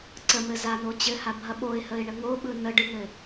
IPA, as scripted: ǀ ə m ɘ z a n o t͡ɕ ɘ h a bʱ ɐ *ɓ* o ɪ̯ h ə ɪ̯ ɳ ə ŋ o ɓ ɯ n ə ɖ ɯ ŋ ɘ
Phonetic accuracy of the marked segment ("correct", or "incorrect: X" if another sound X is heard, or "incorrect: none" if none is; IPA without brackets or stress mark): correct